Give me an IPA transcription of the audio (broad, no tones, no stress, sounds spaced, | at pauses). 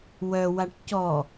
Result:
w œ w a ʈ c ɔ